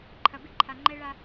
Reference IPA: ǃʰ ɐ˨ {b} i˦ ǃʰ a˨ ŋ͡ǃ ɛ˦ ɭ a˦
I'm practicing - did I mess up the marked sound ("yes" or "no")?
no